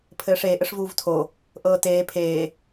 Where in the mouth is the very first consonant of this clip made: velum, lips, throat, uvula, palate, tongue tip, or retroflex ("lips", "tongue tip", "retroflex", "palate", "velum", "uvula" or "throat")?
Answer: lips